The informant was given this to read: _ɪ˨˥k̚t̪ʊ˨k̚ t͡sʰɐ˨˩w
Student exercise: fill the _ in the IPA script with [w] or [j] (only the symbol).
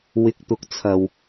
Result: w